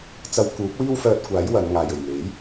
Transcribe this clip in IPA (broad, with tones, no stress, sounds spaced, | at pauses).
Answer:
t͡s ɐ˧ w k uː˨˥ p̚ w iː˥ w f œː˧ t̚ kʷ aː˨˥ j w ɐ˨˧ n ŋ aː˨ j ɵ˨˩ ɥ n̪ e˨˥ j